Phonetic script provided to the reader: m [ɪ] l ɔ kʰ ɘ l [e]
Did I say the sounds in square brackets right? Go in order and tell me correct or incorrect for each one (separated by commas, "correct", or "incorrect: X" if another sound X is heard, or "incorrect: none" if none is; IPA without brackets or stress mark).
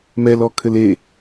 incorrect: ɛ, correct